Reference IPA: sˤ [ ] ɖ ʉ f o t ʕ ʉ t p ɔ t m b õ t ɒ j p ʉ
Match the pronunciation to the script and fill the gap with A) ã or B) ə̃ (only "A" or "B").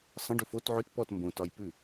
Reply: B